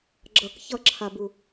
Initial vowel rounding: unrounded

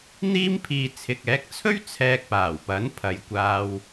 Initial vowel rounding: unrounded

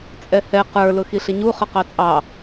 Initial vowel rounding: unrounded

